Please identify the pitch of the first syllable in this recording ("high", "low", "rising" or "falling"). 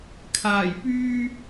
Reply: low